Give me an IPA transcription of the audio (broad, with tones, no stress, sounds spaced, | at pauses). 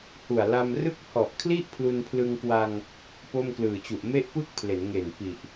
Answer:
h u˨˩ a̯ l a˧ m r ɯ˥˩ k̚ h ɔ˨˩ ʔ kʰ l i˥˩ ʔ pʰ l u˧ n pʰ l ɯ˧ ŋ k w a˧ ŋ | p o˥˩ m k l ɯː˨˩ t͡ɕ u˨˩ ʔ m e˥˩ ʔ p ɯ˥˩ k̚ pʰ l e˩˦ n ŋ e˨˩ n p i˨˩ ʔ